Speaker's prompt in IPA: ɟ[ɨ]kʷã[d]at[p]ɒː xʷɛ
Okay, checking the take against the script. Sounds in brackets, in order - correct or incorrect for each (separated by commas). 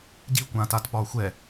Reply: incorrect, incorrect, correct